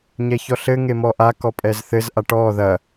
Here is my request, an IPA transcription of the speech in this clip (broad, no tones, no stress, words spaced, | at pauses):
ɲɛçɔɬɘ ŋemɔʔa kɔpʼɛzθɘz ʔaʈɔ ðɐ